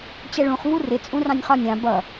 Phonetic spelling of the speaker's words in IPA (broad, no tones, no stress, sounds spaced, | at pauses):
t͡ɕ ɛ ɭ ũ χ v u r ɪ t͡sʼ ũ r ɑ̃ nʲ χ ɒ nʲ ɑ̃ b ʌ